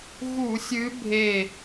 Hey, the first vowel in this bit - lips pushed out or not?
yes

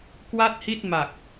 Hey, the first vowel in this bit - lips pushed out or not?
no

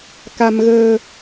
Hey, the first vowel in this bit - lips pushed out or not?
no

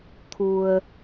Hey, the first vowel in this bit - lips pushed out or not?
yes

